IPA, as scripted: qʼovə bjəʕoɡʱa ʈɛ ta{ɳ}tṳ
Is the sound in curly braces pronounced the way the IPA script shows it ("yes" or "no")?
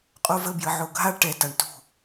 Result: yes